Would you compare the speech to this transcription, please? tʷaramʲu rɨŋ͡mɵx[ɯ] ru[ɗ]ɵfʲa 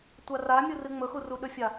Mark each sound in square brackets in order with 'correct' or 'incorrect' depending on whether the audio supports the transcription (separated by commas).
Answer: incorrect, correct